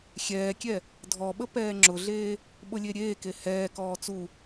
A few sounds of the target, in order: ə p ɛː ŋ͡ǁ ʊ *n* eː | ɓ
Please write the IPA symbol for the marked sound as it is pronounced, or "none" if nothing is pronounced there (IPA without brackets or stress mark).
ɮ